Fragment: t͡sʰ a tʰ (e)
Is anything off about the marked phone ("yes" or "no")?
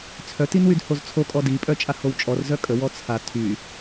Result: yes